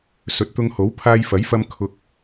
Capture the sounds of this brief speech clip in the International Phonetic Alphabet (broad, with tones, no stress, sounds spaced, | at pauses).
s ɵ˨˥ t̚ t̪ ʊ˧ ŋ h o˨˥ w pʰ aː˧ j f ɐ˨˥ j f ɐ˧ m kʰ ʊ˧ k̚